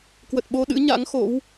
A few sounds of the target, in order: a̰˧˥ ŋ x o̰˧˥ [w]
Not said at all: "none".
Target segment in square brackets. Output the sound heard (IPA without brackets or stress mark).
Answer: w